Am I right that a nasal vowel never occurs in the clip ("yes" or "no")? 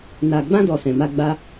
no